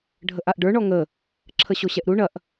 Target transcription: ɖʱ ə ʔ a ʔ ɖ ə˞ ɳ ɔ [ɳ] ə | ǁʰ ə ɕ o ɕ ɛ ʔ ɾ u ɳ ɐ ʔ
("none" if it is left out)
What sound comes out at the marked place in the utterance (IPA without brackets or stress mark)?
ŋ